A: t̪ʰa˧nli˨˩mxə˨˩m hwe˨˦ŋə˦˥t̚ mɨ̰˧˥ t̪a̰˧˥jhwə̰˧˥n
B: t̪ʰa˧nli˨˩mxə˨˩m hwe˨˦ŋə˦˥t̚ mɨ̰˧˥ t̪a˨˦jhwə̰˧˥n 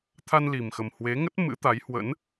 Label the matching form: B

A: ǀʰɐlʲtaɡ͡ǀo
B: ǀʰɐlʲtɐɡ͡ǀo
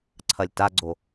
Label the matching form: A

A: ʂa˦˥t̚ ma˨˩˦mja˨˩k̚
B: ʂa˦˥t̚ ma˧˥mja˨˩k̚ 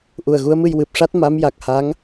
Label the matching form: B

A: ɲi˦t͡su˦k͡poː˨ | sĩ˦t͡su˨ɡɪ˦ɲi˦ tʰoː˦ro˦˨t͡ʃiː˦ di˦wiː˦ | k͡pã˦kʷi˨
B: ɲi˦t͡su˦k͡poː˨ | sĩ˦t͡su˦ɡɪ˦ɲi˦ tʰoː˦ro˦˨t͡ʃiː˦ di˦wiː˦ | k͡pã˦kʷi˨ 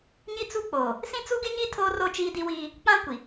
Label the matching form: B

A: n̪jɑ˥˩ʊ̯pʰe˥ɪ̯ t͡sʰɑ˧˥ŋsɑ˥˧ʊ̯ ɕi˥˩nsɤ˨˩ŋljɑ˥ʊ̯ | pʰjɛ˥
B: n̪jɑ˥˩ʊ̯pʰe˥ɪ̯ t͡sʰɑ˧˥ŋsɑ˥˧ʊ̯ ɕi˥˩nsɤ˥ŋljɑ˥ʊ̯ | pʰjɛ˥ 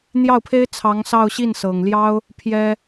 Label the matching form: A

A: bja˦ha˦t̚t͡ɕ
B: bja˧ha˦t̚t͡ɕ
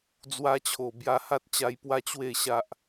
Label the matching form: B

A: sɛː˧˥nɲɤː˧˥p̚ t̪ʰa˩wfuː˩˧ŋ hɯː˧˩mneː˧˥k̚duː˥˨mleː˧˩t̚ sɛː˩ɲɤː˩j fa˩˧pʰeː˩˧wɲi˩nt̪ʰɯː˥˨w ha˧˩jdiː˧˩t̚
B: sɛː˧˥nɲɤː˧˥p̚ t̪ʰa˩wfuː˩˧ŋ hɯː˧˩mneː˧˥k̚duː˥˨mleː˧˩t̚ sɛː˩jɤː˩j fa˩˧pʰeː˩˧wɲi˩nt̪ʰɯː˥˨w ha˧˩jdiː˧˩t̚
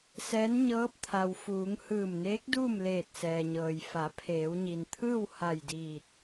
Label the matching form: A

